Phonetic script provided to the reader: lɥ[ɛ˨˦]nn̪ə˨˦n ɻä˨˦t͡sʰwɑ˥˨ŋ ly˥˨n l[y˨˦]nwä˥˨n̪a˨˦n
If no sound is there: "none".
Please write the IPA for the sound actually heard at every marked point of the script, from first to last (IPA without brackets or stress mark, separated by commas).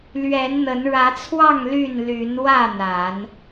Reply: ɛ˨˦, y˨˦